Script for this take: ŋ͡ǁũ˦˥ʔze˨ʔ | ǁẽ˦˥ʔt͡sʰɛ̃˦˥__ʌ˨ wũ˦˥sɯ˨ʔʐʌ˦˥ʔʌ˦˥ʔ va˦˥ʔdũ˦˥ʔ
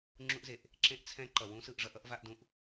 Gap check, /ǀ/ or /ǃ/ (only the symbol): ǃ